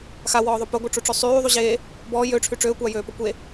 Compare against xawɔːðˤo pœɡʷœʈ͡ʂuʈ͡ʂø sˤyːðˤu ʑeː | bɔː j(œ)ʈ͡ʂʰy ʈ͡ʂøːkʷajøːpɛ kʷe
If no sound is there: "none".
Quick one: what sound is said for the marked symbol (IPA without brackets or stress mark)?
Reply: ø